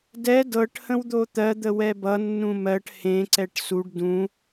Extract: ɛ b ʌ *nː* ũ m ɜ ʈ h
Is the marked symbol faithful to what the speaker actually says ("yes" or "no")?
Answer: yes